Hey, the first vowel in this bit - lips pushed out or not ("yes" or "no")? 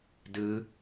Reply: no